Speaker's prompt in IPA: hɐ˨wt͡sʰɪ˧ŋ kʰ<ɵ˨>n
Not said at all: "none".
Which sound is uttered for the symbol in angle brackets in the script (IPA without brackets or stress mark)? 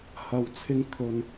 ɵ˨